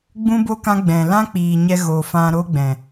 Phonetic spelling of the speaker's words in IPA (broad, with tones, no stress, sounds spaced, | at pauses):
ɡ͡b ũ˦ b o˦ k ã˦ ɡ͡b ɛ̃˨ l ã˦ k͡p iː˨ ɲ ɛ˧ ɣ o˨ f ã˧ ɾ o˦ ɡ͡b ɛ̃˨